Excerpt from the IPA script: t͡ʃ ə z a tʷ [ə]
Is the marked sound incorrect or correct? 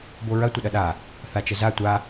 incorrect